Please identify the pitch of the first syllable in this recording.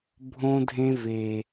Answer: high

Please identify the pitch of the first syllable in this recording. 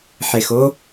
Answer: low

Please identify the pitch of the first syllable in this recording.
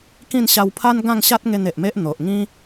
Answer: falling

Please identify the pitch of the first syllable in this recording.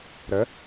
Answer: rising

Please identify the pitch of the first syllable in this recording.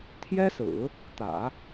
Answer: high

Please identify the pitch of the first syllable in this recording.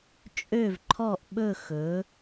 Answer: falling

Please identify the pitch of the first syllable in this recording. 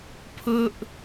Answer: high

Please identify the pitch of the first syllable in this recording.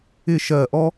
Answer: falling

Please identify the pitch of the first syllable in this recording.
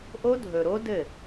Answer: high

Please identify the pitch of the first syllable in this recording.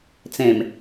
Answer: low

